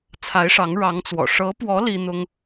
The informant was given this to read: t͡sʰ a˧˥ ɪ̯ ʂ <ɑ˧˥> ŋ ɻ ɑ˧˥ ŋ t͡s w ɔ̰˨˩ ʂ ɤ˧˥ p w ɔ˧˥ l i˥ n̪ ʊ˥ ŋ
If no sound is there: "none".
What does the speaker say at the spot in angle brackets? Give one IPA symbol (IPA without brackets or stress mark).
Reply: ɑ˧˥